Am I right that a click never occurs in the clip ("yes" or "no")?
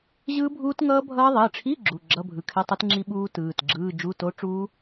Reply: no